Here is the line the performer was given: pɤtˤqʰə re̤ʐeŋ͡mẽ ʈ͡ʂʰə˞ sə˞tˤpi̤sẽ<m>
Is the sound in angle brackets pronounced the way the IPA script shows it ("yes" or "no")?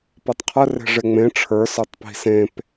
no